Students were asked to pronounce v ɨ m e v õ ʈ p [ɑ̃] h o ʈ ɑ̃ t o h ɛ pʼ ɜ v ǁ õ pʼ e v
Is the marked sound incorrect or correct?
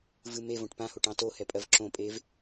incorrect